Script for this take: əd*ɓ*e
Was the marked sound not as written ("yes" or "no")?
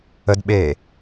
no